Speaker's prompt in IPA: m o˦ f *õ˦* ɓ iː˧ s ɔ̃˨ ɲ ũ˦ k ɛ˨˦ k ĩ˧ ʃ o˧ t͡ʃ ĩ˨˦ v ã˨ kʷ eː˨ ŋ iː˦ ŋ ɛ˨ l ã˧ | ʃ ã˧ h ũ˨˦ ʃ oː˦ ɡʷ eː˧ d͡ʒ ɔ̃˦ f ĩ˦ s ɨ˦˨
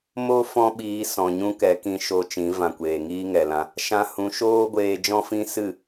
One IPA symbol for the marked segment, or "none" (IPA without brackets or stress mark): ɔ̃˦